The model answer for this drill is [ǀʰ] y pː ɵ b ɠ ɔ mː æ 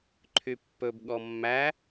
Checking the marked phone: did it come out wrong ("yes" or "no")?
yes